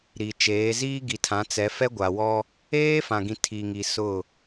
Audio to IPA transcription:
ɾi˨t͡ʃeː˨˦ ziː˦ɡi˨tʰã˨˦ t͡sɛ˨˦fɛ˦ɡʷa˨wɔ˦ | eː˦fã˨ɡĩ˨ tʰi˨ŋi˨ sʊ˦˨

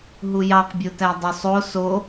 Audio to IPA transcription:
ɦujɑqbʲotæ dˤysˤo so

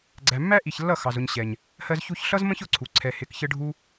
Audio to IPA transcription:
ɡ͡ǀæ˨mːæ˦ʔi˨çlːʌ˦˨ xɑ˨zʊ˧ɲɕɛ˨ɲ | hɜ˧zçu˧çɬʌ˦zmə̃˦ç ʊ˧ǀʰu˨ ǀʰɛ˨ hɪ˨˦kçə˦ ɖʱu˦

